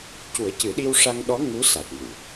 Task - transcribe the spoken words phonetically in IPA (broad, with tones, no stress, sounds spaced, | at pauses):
c u˨˩˦ ə̯ c ɨ˨˩˦ ɗ i˧ w ʂ a˧ ŋ ɗ ɔ˧˥ ŋ u˧˥ s a˨˩ t̚ m u˨˩˨